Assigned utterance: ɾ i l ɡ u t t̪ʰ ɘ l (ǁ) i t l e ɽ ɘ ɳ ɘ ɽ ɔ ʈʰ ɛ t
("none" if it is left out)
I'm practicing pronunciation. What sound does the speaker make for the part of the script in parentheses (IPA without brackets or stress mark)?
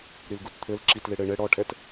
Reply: ǁ